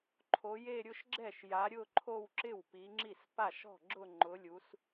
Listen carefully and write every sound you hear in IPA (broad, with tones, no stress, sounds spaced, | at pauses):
ǃʰ o˨˦ j e˥˧ ɾʲ ʊ˥˧ ʃ ɡ͡ǁ ɛ˥˩ ʃ j a˨˦ ɾʲ ʊ˥˧ ǃʰ o˥˧ w ǁ ɪ˥˩ w p i˨˦ ŋ͡ǁ i˥˩ s p a˥˩ ʃ ɔ̤˥˩ ɡ͡ǁ ʊ˥˧ ŋ͡ǃ ʊ˨˦ lʲ u˨˦ s